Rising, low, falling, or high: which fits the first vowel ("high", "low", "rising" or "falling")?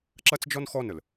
high